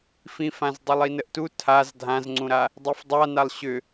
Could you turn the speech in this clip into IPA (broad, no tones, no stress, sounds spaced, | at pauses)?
f ĩ f ã z dˤ u lˠ i n ə ʔ t u tʰ a z dʱ ã z ŋ͡ǀ ũ ɾ a | dˤ i f dˤ a n a lˠ ɕ ʏ